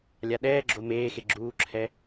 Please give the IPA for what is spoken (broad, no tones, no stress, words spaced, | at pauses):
lʲaɗɛːɡ͡ǁo meːxe ɡ͡ǁuːǁʰɛ